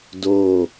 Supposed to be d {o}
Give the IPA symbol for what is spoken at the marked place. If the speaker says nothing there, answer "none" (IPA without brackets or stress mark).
o